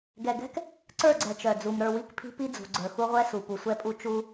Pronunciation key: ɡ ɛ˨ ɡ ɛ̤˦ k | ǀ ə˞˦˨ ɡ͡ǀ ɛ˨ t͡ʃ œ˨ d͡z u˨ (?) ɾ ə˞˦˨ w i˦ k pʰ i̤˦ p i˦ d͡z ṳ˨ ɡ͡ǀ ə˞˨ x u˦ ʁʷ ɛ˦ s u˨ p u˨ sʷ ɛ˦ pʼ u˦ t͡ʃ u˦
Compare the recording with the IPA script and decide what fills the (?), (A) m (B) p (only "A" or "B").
A